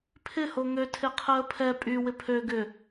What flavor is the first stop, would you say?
aspirated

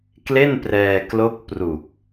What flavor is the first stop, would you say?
plain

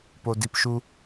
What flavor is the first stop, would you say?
plain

